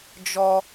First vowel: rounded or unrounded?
rounded